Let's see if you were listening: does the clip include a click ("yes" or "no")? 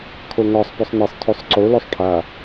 yes